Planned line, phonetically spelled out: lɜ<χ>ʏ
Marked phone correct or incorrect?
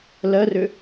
incorrect